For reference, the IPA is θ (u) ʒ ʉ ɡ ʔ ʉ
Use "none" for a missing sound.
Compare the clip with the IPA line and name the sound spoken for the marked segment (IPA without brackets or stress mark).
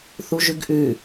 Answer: u